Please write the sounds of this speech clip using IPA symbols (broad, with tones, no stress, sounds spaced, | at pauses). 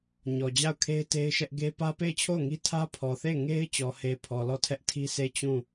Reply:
ɲ ɔ˨ d͡ʑ a˦˨ ʊ̯ kʰ e˦ ɪ̯ t e˦ ɪ̯ ʃ ɛ˦ ʔ ɡ e˦ p ä˦ p e˦˨ ɪ̯ t͡ɕʰ o˦˨ ʊ̯ ŋ i˦ tʰ ä˦ pʰ ɔ˨ θ e˦˨ ɪ̯ ŋ e˦ ɪ̯ t͡ɕ ɔ˨ h e˨ pʰ ɔ˨ l ɔ˦˨ tʰ ɛ˦ ʔ tʰ i˦ sʰ e˦˨ t͡ɕ ũ˦˨